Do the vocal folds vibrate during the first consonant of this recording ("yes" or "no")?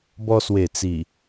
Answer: yes